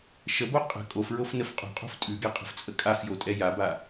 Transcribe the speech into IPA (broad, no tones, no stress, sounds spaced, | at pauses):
ʃ ə b o qʼ ə̤ kʼ o f ɹ o f n ə f qʼ o̤ qʼ o̤ f tʼ ʉ ɡ ɛ qʼ ə̤ f t͡sʼ ə kʼ a f j o tʼ ɛ j a b a